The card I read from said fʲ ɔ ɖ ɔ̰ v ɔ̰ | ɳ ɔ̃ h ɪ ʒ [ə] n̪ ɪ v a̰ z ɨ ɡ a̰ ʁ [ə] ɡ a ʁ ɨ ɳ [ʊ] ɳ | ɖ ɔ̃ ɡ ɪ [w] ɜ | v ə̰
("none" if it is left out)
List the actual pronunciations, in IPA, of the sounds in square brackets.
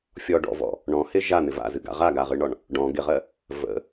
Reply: a, a, ɔ, ʁ

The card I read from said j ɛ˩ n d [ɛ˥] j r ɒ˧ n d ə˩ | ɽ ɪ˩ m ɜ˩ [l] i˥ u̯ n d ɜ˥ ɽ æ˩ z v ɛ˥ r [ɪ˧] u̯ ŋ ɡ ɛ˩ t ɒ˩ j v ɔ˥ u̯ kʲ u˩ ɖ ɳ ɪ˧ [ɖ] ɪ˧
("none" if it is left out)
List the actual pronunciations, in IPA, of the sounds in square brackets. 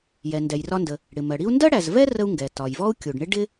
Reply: ɛ˩, ɽ, ə˧, ɖ

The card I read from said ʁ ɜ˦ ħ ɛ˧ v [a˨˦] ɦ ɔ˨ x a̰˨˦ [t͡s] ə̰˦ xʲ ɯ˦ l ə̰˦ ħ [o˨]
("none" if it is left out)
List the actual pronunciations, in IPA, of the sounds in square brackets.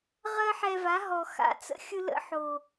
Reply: a˨˦, t͡s, o˨

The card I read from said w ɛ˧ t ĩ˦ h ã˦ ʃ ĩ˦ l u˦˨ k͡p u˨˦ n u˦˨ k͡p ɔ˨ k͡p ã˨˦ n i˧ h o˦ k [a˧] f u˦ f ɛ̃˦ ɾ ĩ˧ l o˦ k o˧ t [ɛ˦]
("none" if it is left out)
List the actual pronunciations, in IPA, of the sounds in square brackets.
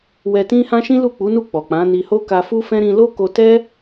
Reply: a˧, ɛ˦

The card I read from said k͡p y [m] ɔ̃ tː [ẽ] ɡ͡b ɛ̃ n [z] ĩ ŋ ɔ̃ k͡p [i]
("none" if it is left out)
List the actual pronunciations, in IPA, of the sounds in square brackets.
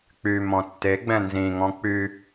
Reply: m, e, z, y

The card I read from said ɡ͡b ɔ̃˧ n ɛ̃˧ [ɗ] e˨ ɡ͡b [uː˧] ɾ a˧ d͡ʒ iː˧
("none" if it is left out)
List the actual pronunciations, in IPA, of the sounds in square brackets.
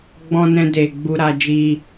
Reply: d, u˧

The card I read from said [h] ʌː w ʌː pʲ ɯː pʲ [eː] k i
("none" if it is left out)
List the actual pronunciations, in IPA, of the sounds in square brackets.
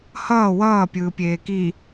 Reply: h, eː

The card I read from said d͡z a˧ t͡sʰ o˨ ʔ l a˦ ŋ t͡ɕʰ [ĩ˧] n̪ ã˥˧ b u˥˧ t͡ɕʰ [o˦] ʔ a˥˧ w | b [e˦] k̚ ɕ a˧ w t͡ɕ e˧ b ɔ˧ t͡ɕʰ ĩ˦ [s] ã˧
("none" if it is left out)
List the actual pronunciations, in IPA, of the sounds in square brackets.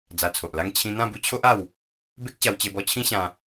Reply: ĩ˧, o˦, e˦, ɕ

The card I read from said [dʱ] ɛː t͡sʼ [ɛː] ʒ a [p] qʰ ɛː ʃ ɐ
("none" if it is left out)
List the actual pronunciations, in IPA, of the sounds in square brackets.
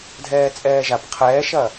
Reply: dʱ, ɛː, p

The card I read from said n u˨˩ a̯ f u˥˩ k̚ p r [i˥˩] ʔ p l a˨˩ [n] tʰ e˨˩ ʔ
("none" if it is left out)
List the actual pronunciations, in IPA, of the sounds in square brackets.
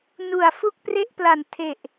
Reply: e˥˩, n

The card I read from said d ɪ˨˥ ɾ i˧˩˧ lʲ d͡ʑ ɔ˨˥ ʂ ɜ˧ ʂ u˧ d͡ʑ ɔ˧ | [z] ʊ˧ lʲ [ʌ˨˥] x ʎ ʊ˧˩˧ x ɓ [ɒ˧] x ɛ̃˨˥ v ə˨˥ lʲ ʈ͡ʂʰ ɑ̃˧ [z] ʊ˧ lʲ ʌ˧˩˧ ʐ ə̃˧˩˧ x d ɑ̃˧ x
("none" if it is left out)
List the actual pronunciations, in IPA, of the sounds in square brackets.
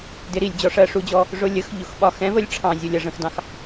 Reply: ʐ, ə˨˥, ɒ˧, zʲ

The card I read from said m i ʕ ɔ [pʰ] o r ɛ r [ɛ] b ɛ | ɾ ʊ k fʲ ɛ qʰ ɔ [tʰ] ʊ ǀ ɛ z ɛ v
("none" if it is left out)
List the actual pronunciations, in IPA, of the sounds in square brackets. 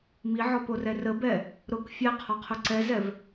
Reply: p, ə, qʰ

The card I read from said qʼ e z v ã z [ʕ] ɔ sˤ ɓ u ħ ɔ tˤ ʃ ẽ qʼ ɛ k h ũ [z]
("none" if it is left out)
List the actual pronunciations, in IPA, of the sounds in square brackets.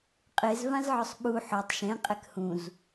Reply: ʕ, z

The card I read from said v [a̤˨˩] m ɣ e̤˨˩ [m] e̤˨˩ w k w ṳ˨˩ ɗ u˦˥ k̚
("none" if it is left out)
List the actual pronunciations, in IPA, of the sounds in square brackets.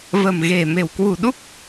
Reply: ə̤˨˩, m

